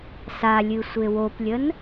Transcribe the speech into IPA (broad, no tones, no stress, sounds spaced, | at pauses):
s a lʲ ɨ sʷ e w o p lʲ ə n